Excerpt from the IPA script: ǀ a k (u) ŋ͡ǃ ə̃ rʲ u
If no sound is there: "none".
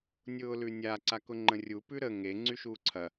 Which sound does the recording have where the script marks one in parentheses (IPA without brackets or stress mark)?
ʊ